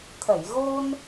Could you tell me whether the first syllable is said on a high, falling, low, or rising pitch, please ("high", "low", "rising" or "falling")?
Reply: low